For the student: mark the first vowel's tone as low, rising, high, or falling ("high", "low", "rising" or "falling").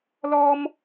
high